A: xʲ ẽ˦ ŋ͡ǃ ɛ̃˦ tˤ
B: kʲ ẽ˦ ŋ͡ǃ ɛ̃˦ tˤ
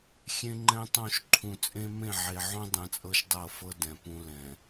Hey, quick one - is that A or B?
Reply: A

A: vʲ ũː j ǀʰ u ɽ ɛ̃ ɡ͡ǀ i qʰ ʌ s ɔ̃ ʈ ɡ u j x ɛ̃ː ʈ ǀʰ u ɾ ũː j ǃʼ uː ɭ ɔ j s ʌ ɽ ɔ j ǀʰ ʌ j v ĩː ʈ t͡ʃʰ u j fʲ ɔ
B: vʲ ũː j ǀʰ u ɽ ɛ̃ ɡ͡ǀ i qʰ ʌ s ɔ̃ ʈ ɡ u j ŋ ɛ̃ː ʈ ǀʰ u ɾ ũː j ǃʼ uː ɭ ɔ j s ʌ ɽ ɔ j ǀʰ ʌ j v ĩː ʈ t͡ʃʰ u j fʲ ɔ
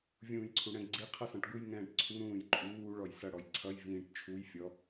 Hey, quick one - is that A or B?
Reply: B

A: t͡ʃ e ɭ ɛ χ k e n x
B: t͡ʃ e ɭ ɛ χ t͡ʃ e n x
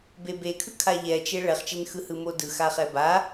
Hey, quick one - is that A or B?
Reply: B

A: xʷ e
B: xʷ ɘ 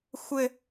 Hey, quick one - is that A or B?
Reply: B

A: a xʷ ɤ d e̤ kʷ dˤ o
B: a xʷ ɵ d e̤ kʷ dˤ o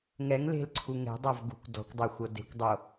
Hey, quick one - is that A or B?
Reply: A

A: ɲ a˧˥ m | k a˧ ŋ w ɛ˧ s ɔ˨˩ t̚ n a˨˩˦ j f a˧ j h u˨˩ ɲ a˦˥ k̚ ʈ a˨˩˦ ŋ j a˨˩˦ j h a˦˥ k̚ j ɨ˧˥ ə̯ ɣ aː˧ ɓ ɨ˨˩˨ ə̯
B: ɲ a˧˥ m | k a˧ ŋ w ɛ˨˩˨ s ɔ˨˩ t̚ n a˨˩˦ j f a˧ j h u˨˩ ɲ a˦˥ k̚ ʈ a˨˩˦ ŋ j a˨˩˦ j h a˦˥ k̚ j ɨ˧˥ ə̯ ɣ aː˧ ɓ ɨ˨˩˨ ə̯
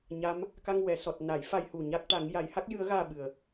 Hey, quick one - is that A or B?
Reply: B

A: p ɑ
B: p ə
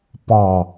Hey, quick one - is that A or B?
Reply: A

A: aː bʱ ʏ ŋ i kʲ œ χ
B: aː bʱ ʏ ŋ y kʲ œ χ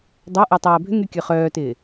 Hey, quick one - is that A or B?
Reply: B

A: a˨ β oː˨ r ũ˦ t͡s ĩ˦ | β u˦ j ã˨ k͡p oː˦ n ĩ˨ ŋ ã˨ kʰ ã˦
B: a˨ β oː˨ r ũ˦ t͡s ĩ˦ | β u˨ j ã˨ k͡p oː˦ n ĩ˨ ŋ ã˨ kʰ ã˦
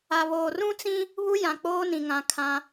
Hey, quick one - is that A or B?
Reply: A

